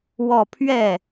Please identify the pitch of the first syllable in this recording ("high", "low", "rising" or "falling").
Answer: falling